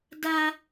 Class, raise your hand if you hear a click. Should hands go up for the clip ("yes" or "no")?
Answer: no